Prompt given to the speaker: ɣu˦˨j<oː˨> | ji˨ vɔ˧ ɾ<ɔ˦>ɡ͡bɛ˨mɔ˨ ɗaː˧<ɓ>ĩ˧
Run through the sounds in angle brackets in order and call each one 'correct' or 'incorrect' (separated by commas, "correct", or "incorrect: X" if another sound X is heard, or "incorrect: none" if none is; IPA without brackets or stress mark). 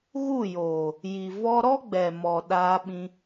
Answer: correct, correct, correct